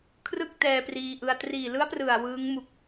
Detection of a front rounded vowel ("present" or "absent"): absent